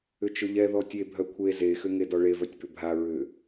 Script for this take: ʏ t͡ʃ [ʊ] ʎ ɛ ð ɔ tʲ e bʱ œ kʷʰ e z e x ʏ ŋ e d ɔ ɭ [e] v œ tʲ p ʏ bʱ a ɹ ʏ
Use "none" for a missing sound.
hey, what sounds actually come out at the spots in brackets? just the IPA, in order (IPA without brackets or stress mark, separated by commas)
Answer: ʊ, e